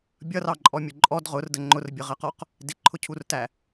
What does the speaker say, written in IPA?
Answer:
bʲ ʌ r ɑ ǃʼ ɔ mʲ ʊ ǃʼ ɔ d ʁ ʊ r d ə ŋ͡ǃ ʊ r bʲ ə ʁ ɜ q ɔ q | d ɪ ǃʰ ʊ cʰ u r t æ

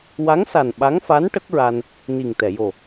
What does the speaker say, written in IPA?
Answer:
w a˧˥ ŋ s a˨˩ n ɓ a˧˥ ŋ f a˧˥ n ʈ ə˦˥ k̚ ɹ a˧ n | n i˨˩ ŋ t̪ ɛ˨˩˨ j o˨˩

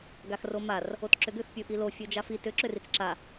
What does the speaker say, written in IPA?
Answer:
ɡ a x r o m a r | o t ǁ ʏ ɡ ʏ x pʲ u ʔ i l o fʲ o d͡ʒ a f i t ʏ ǁ ʏ r i t͡s ǁ a

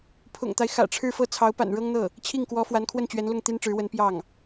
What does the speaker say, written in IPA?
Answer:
pʰ ʊ̰˨˩ ŋ t̪ a˦ ɪ̯ x ä̰˨˩ ʈ͡ʂʰ ɻ̩˥˧ f ɤ˥˩ t͡sʰ ɑ˧˥ ʊ̯ p a̰˨˩ n ɻ ɤ˥ ŋ n̪ ɤ˥˩ | t͡ɕʰ i˥˩ ŋ k w ɔ˧˥ f w a˧˥ n kʰ w ə˥˩ n t͡ɕ ɥ ɛ˧˥ n l ʊ˥˩ ŋ t̪ i˥ n ʈ͡ʂ ɻ̩˧˥ w ə˧˥ n p j ɑ˥˩ ŋ

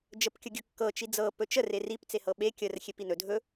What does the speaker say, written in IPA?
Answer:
d͡ʒ ə p kʲ ə ɡʲ ɵ kː ɤ t͡ʃ i d͡z ɤ p ɵ t͡ʃ ə r e r i p t͡s e h ɤ ɓ e kʲ ə r xʲ e p i n ɵ dʱ ɵ

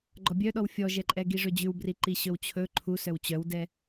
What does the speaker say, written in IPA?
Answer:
ɡ͡ǃ ɔ bʲ œ ɗ ɔ w fʲ ɔ ʒ ɛ ǃʼ ɛ ɡ i ʐ ɵ d͡ʑ ʉ w b r i ǃ i ɕ ɵ w t͡ɕʰ ɵ ǃʰ u s œ w t͡ɕ œ w d ɛ

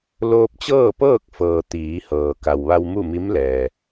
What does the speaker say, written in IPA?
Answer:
l oː˧ p̚ t͡ɕ ɤː˥˨ p ɤː˥˨ k̚ f ɤː˩ t̪ iː˩˧ h ɤː˩ k a˩ w ʋ a˧ w m u˥˨ m i˧˥ m l ɛː˩

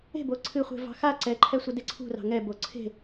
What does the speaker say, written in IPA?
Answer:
e̤ b o ǀʰ ɨ χʷ e̤ v ɑ̤ x a ǀ ɛ ǃʰ ɛ sʷ ə d e ǀʰ ṳ r ɑ̤ ŋ ɛ b o ǀʰ e̤

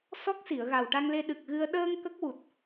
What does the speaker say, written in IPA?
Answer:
s ɔ˦˥ k̚ s i˨˩˨ ə̯ ɣ a˨˩ w ʈ a˧ ŋ l e˧ ɗ ɨ˨˩ k̚ ɣ ɨ˧ ə̯ ɗ əː˧ ŋ k ə˦˥ k̚ w u˨˩ t̚

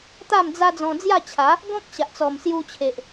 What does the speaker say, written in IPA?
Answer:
t̪ a˥˧ m d͡z a˧ d͡z ɔ̃˧ d͡z j a˥˧ t͡ɕʰ a˨˦ | ɡ ɔ̃˦ k̚ ɕ a˨ ʔ t͡s ɔ˨˩ m s j u˧ t͡ɕʰ e˨ ʔ

